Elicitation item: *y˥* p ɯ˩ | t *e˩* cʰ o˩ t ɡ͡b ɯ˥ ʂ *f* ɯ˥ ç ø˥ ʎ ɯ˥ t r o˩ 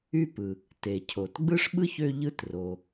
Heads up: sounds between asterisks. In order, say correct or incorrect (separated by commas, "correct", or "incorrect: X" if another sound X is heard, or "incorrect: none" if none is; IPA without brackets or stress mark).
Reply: correct, correct, incorrect: ɓ